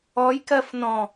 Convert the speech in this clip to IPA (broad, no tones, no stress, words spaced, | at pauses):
ɔjkɜf nɔ̃